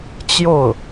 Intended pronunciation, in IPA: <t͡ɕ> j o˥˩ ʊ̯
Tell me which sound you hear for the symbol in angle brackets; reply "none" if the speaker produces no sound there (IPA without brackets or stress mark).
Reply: t͡ɕ